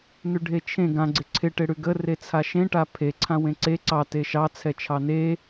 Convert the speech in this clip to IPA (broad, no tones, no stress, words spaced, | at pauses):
nʉɖʱet͡ʃʰẽ ɡã ɡ͡ǀɪǀʰɪ ʈɪɽʉɡə ret͡sʰaʃẽ ʈapʰe ǀʰãwẽǀe ǀɑ teʃɑ t͡sʰɛt͡ʃʰɑne